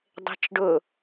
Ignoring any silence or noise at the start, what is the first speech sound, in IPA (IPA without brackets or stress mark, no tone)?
dˤ